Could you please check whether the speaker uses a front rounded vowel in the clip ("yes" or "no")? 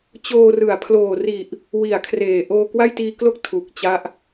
no